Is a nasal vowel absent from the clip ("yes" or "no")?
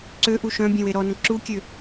no